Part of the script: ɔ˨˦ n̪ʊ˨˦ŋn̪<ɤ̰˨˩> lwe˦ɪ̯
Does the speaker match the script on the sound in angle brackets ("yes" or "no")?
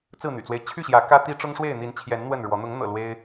yes